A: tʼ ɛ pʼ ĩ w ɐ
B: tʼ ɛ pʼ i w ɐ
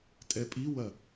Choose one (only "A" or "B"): B